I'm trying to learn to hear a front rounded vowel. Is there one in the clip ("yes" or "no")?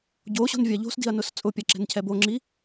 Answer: no